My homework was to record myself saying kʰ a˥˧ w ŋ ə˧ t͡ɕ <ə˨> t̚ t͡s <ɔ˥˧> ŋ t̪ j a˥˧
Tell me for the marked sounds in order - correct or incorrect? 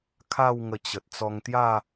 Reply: correct, incorrect: ɔ˧

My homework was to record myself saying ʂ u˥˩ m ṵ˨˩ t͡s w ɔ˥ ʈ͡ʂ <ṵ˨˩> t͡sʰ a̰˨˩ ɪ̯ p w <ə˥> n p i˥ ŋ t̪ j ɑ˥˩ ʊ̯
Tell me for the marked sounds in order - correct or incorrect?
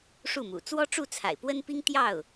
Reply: incorrect: u˥˩, correct

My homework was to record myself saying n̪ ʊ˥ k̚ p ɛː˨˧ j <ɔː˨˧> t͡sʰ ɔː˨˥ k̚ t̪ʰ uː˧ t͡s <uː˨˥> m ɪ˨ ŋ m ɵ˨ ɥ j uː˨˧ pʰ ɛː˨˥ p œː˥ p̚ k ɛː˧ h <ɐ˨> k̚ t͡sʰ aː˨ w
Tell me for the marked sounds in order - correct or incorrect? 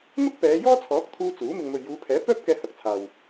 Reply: incorrect: ɔː˥, correct, correct

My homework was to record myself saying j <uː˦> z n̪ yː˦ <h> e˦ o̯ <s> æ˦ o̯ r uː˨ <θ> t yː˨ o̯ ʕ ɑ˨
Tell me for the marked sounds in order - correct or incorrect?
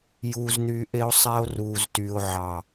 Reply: correct, incorrect: ʔ, incorrect: sˤ, incorrect: z

